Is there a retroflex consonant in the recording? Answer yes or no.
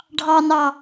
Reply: yes